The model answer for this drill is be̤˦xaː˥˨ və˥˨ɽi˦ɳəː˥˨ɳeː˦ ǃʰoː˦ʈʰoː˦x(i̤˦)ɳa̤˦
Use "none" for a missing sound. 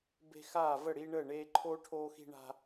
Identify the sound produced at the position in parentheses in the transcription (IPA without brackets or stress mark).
i̤˦